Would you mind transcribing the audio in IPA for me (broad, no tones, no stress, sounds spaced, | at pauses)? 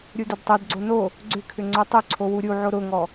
ɾʲ u d ʊ d tˤ o d ɡ͡ǀ o n o | ɡ͡ǀ ʏ kʰ ʏ ŋ͡ǀ o tˤ ʏ ǀʰ o w u ɾʲ u ʕ o ɾ ʊ ŋ ɔ